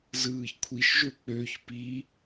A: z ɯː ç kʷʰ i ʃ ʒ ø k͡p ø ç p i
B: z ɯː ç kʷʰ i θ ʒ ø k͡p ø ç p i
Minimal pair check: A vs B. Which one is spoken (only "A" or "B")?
A